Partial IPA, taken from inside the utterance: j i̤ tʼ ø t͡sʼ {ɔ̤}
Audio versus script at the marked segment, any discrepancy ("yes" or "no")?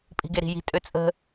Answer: yes